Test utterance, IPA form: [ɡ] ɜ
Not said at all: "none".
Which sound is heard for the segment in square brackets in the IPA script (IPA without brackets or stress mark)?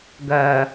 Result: ɡ